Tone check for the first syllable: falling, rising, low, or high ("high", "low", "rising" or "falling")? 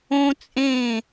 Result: high